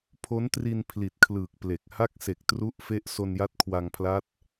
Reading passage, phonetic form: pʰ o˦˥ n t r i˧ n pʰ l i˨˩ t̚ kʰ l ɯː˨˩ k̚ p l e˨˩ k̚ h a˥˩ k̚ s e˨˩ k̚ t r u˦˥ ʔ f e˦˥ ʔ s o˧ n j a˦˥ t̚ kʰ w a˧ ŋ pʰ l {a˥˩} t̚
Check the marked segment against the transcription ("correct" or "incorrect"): incorrect